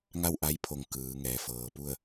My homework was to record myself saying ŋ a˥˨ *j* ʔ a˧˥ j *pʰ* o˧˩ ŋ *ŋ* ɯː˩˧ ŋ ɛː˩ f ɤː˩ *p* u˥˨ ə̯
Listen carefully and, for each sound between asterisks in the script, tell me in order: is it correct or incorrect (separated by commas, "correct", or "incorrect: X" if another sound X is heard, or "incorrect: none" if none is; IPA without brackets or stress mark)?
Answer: incorrect: w, correct, incorrect: k, correct